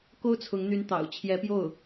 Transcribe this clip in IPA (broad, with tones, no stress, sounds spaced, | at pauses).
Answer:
k o˥ ʊ̯ t͡sʰ ʊ˧˥ ŋ n̪ y˧˥ n t̪ ɑ̰˨˩ ʊ̯ t͡ɕʰ j ɛ˧˥ p j o˥˩ ʊ̯